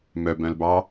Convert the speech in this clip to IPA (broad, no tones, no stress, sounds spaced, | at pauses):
m œ b œ̃ l b ɑ